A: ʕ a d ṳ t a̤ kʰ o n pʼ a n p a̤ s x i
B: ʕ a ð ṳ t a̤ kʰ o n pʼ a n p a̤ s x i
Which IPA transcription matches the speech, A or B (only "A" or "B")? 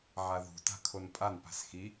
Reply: B